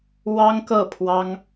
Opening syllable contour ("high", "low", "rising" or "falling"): high